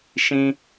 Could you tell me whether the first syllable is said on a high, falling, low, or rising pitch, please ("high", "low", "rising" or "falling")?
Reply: high